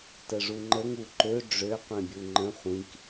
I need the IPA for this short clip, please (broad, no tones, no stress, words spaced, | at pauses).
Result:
təʐuŋ͡ǃəŋ uǃø ɖ͡ʐø qʷĩbʲuŋ͡ǃə̃ χʷĩk